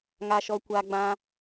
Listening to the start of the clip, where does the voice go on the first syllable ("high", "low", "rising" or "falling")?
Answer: low